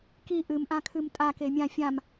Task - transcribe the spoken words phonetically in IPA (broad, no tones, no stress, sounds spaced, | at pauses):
k i ʔ ɨ m ʔ ã kʰ ɨ m tʼ a k e mʲ ã fʲ ã m